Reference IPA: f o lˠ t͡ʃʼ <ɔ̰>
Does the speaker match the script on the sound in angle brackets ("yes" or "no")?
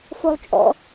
yes